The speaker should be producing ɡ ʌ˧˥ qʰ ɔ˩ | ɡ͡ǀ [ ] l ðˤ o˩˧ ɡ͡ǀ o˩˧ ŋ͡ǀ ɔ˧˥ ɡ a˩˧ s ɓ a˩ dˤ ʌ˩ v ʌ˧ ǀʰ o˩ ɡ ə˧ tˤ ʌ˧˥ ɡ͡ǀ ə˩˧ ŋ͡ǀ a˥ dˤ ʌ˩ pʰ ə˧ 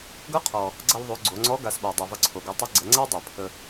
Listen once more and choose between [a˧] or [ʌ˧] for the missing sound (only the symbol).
ʌ˧